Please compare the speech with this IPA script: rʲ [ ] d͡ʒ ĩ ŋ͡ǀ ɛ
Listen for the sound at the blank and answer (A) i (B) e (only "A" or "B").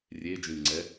B